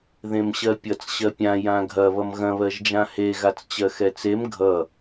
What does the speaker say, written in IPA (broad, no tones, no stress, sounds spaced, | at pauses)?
ð ẽ m ɕ ɜ pʲ ʌ t͡s ɕ ɜ pʲ ã j ã ɡʱ ɐ β ʌ m ɣ ɐ̃ β ɜ ʒ d͡ʒ ã h e ɣ a t͡s t͡ɕ ɜ x ɛ t͡s e m ɡʱ ʌ